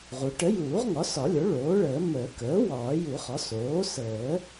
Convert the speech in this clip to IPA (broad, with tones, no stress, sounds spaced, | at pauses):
ʁ u˩˥ ʈ ə˩˥ j uː˨˩˦ ʁ ŋ ɒ˩˥ s ɒ˨˩˦ lʲ o˩˥ ɭ oː˩˥ ɭ əː˨˩˦ m əː˨˩˦ k əː˩˥ w ɒː˨˩˦ j u˨˩˦ χ ɒ˩˥ s oː˩˥ s əː˨˩˦